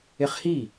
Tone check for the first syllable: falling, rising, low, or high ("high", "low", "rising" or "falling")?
high